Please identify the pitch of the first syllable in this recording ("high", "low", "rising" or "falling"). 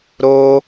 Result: high